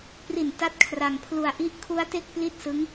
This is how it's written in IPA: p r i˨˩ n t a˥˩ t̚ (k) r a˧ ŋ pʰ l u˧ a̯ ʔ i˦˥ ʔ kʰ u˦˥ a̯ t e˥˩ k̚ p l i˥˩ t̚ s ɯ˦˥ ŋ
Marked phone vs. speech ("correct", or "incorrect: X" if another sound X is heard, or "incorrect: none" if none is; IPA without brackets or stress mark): incorrect: kʰ